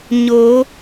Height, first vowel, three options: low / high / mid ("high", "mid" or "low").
mid